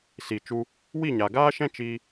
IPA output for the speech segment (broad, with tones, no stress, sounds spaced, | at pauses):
s i˨ t͡ʃ u˧ | w i˦˨ ɲ a˨ ɡ aː˦ ʃ ɛ̃˦ t͡ʃ iː˧